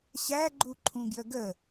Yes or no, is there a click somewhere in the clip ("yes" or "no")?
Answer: yes